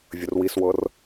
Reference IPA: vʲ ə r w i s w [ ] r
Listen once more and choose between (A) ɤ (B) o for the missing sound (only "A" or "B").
A